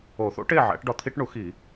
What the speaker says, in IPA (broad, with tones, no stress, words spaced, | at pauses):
o˨˩˦θo̰˩˥ʈe˥˨ʕæ̰˨˩˦ʈ ɖɒ˨t̪ʰi˦ʈɳu˨˩˦xi˨˩˦